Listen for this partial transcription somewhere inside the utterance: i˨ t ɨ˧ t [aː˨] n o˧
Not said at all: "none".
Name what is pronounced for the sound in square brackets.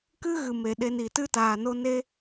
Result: aː˨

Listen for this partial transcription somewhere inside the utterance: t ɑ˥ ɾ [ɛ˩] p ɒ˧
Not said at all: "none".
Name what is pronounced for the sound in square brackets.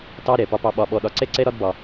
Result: ɛ˩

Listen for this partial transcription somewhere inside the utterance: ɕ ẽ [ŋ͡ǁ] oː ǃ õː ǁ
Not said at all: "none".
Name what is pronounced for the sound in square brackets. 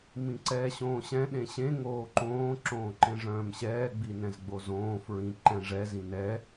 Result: ŋ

